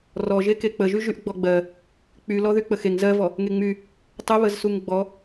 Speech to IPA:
rɔʒe kek͡pəʒy ʒyʔɡ͡bɔɡ͡bɜ | k͡pylɔ ðyk͡pəxeŋ zɜvɔ | ŋeŋ͡my | tˤə βəzsuŋɡ͡bɔ

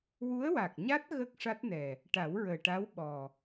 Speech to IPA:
wu˧˥ə̯wa˨˩k̚ɲa˦˥t̚ ɣə˦˥k̚ʂa˦˥t̚nɛ˨˩ | ʈa˨˩˦wɹəː˨˩ʈa˧˥w ɓɔ˨˩

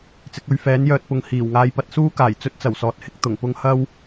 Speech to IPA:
t͡sɪ˨˥k̚ ɵ˧ɥ fɛː˨˥njœː˧t̚pʊ˨ŋ hiː˨˩w ŋaː˧jpɐ˧t̚suː˥kaː˨˩j t͡sɵ˥t̚t͡sɐ˨˩wsɔː˨t̚hɪ˧k̚ t̪ʊ˨˩ŋpʊ˥ŋ hɐ˥w

